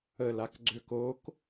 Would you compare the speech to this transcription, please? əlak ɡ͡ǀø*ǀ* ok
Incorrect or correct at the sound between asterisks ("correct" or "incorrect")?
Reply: incorrect